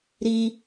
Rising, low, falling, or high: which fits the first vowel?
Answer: high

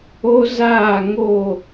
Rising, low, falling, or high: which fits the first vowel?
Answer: high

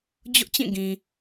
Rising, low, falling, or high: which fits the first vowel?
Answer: high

